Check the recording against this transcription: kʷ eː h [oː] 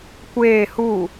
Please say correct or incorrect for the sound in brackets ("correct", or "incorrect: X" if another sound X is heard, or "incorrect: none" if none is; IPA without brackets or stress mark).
incorrect: uː